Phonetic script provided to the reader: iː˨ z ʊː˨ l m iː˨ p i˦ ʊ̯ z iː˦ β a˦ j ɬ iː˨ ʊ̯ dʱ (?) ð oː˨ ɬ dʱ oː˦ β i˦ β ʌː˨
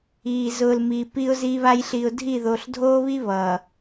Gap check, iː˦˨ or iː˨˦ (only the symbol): iː˦˨